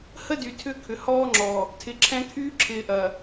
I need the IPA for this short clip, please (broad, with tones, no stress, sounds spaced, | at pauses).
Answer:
h ə˦ d y˨ tʰ ʏ˦ kʰ ʏ˨ h ɔː˦ ŋ͡ǁ ɔ˨ | tʰ ɪ˨ ǁʰ ɛ̃˦ kʰ yː˦ ǁʰ ɪː˨ ʔ ɐ˨